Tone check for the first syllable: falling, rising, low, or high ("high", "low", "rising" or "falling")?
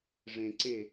low